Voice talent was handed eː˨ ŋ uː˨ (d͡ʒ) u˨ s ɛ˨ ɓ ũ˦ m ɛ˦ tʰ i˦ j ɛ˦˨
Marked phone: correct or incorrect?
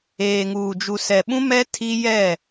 correct